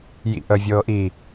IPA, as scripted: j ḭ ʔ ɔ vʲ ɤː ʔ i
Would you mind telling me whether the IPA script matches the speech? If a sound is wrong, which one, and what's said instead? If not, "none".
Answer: ɔ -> ə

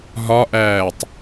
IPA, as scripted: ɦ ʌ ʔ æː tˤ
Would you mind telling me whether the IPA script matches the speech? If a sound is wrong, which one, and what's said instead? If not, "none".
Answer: ʌ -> ɒ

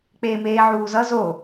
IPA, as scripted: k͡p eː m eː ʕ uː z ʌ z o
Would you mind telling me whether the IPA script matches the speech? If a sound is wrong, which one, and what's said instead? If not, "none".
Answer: none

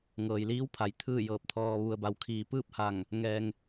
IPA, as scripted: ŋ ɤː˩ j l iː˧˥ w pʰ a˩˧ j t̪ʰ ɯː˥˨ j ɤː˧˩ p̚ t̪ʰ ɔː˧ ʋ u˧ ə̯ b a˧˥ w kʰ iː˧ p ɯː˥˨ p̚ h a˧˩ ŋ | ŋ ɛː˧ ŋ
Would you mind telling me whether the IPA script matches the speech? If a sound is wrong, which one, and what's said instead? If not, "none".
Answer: none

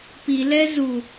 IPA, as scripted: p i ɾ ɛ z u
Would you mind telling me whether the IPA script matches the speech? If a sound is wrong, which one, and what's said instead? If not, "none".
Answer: ɾ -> l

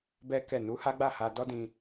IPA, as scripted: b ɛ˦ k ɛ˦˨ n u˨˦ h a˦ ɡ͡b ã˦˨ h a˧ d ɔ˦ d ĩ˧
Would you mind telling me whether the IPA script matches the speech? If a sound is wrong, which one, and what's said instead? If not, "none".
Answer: ã˦˨ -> a˦˨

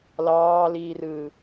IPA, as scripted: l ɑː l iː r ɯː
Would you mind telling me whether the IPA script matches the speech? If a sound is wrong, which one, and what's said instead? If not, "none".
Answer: none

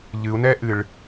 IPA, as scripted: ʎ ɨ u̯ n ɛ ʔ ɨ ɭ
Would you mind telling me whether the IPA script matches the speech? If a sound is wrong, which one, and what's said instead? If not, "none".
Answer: none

